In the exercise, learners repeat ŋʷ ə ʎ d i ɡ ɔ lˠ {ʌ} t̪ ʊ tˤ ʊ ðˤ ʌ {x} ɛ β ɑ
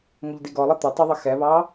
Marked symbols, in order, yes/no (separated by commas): yes, yes